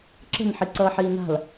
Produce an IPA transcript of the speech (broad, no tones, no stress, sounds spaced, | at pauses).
ǁ ə̤ n ħ i ǀ ʌː ħ iː n a̤ l